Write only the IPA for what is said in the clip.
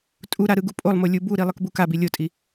tʼuɾa ɾɯɡupʼolˠmo lʲubuɾi lˠɯkbukabi lʲotʼi

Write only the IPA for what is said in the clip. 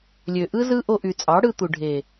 lʲø˨ʔɯ˦zɯ˦ ʔo˧ʔy˨t͡sʼɑ˨˦ ɽɯ˧t̪u˨ɖʱe˨

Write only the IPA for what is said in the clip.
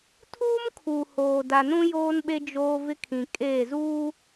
tʰuː˦mkʰuː˨ hoː˨da˨nũ˦ joː˦nɓe˦ d͡ʒoː˦vɪ˦kʰĩ˨ kʼeː˦˨zuː˦

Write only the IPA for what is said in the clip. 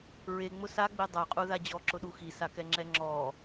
ɹeŋ͡mʊ saɡ͡be dˤaqʼuða d͡ʑɔǁʊɗu xisakɛŋ͡ǁɛ ŋ͡ǁɔ

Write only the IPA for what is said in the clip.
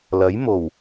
lɐ˨˥j mo˨˩w

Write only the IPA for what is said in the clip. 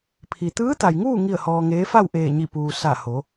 pʰi˩t̪ɯː˧˥t̪a˩jŋuː˥˨ ŋi˥˨ə̯hɔː˧ŋeː˧˥ fa˥˨wʔeː˧˩ɲi˧˩puː˩ sa˧˩ ho˩˧

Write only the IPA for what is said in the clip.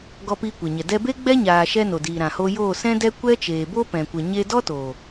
ɡɔ˧piː˧kʷe˨ɲɛ˨ dɛ˧be˦ɡ͡bɛ˦ ɲaː˨ʃɛ˧ no˨diː˨ ɾã˨hoː˧joː˦˨ sɛ̃˦dɛ˦ kʷɛ˦ t͡ʃeː˨bo˦pɛ̃˨kʷə˨ ɲe˦ dɔ˦toː˨

